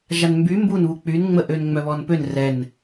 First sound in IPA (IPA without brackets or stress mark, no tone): ʒ